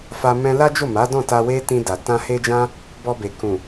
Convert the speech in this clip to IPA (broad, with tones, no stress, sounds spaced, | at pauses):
f a˧ m ɛ̃˧ l a˦ d͡ʒ o˦˨ m a˨˦ d ɔ̃˦˨ t a˧ w e˦ t ĩ˧ d a˨ t ã˧ h e˦ d͡ʒ ã˦ | b ɔ˧ b e˨ k ũ˨